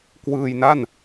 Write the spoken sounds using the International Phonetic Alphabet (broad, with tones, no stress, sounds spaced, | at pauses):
k w ɯː˧ j n a˥˩ n